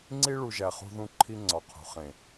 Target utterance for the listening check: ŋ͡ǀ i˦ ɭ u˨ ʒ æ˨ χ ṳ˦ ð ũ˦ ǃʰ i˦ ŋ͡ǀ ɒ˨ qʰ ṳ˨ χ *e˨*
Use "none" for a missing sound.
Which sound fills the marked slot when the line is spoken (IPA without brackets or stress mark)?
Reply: ẽ˨